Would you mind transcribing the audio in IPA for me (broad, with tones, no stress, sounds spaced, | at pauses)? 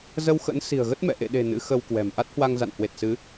z ə˧ w x ə̰˧˥ n s i̤˨˩ ə̯ ɣ ə˦˥ t̚ m ɛ̰˧˨ ʔ ḛ˧˨ ɗ e̤˨˩ n ɨ̰˧˥ x ə˧ w k w ɛ̤˨˩ m ʔ a˦˥ t̚ h w a˧ ŋ z a̰˧˨ n h w e˨˩ t̚ s ɨ˨˦